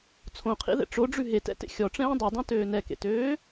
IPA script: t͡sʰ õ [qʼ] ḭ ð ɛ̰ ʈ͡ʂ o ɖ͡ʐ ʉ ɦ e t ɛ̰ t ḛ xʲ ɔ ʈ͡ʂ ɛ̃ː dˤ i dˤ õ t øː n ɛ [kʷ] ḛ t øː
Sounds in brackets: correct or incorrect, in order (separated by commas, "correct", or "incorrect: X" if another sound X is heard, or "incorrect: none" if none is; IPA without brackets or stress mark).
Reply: incorrect: qʰ, incorrect: k